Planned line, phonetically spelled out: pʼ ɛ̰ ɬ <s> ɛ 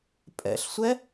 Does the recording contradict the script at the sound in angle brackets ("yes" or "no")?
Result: yes